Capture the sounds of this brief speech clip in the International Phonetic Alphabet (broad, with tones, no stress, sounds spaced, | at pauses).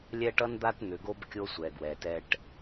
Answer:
lʲ ɛ˦ ʈ ʌ˦ n d̪ a˦ t n̪ ʏ˨ ɡ o˦ b kʲ o˦ sʷ ɛ˨ ɡ w ɛ˨ t ɛ˦ ʈ